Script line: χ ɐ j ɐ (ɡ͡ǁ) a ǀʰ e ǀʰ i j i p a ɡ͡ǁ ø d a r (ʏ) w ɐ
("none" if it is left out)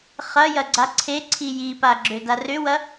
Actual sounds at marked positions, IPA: ɡ͡ǀ, ʏ

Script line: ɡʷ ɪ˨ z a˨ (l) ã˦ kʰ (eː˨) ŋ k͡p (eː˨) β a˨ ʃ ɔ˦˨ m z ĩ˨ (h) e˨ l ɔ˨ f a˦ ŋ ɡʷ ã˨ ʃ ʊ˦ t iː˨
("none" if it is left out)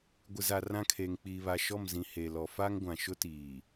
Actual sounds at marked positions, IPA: r, eː˨, iː˨, h

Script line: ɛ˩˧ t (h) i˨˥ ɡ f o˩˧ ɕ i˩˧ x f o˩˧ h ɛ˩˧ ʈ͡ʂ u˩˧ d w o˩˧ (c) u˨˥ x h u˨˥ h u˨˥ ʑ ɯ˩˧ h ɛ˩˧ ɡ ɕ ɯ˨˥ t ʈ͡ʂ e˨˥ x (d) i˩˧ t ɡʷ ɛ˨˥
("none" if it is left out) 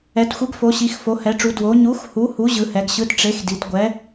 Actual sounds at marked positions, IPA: xʷ, ɲ, d

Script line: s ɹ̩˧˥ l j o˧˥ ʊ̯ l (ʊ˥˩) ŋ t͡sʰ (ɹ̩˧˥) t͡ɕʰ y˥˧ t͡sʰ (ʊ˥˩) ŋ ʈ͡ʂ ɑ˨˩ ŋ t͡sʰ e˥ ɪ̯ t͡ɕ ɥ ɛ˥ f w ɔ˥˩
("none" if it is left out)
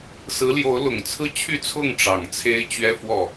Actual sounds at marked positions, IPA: ʊ˨˩, ɹ̩˥˧, ʊ˥˩

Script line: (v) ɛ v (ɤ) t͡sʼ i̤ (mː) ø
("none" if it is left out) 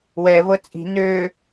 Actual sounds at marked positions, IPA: w, ɤ, n

